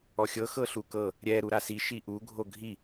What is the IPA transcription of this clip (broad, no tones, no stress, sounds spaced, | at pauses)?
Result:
ɔ xʲ ɤ x ɤ ɬ u k ɤ | ɾʲ ɛ ɾ u ɾ a s i ʃ i ʔ u ɡʱ o ɡʱ i